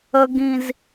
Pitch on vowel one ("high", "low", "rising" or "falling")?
high